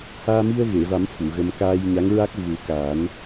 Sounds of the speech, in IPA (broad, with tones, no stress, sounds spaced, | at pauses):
h aː˧ m i˧ ə̯ ɣ e˨˩˨ v a˨˩˦ m f u˨˩˨ ɣ ə˧ m k aː˧ j ɲ a˧˥ ŋ ɹ a˦˥ k̚ v u˨˩˦ k aː˨˩˦ n